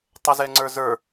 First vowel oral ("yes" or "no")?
yes